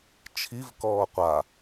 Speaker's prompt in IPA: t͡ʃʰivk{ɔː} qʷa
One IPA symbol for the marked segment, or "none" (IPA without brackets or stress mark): ɔː